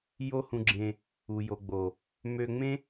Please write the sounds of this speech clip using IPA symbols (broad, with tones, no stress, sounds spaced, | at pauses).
j o˦ h ũ˧ ɡ͡ǁ ẽ˧ | u˨ j o˨ ɡ͡b o˨ | m ø˧ ŋ͡m ẽ˦